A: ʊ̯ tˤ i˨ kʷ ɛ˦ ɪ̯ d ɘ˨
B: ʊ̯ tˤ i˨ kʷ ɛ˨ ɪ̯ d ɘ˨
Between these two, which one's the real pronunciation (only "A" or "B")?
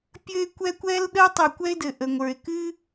A